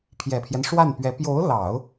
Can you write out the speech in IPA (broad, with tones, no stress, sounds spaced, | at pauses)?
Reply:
pʰ j ɛ˨˩ pʰ j ɛ˦ n ʂ w a˥˩ n p ɥ ɛ˧˥ p j o˧˥ ʊ̯ l ɑ˨˩˦ ʊ̯